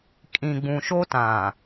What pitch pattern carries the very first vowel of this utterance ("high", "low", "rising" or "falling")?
low